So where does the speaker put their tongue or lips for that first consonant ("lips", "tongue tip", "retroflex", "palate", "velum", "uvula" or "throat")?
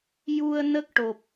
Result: palate